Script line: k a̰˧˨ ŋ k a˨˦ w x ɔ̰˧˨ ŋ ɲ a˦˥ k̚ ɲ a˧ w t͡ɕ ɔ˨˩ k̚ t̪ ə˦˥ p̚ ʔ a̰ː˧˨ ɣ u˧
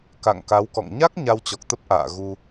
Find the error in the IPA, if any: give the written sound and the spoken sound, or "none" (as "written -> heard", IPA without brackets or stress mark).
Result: x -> k